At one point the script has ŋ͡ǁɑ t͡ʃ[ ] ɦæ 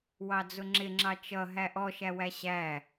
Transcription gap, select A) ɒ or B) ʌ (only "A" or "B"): B